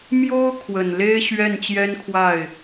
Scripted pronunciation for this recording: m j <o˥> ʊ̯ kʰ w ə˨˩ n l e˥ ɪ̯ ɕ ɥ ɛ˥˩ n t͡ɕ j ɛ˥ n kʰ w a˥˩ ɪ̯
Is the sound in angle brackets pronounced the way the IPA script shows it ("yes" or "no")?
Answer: yes